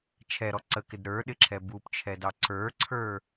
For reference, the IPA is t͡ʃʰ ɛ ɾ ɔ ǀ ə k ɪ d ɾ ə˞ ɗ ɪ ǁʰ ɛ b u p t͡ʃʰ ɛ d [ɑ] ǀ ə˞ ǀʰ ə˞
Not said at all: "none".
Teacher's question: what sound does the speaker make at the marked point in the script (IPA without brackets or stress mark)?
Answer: ɑ